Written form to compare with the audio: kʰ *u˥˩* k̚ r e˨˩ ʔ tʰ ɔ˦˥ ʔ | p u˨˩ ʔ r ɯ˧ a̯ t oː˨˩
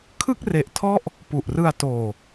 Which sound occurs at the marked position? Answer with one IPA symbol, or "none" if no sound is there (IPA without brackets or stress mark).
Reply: ɯ˥˩